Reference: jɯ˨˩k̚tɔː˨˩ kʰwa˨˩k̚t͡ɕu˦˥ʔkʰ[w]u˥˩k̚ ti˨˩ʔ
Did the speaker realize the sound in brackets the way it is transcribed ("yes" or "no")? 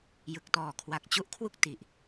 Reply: yes